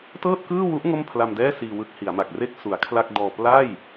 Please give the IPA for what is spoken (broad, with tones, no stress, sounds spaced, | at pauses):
t ɤː˥˩ t̚ k ɯː˥˩ w u˦˥ ʔ ŋ o˥˩ m pʰ l a˧ m d ɛː˥˩ s iː˧ w ɯ˦˥ k̚ h i˩˦ a̯ m a˨˩ k̚ r e˦˥ k̚ s u˩˦ a̯ kʰ l a˥˩ k̚ d ɔː˧ p l a˥˩ j